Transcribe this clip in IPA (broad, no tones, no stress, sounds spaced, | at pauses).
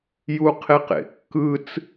j u qʰ e q ḛ kː ɯ t͡s